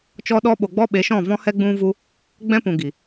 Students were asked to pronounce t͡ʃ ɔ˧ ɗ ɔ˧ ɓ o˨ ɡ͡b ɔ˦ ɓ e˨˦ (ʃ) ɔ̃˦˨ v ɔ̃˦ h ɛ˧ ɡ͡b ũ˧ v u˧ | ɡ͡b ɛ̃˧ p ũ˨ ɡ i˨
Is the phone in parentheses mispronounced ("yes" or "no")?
no